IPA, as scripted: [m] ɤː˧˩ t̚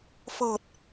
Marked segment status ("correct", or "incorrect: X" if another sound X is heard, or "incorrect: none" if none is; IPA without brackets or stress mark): incorrect: f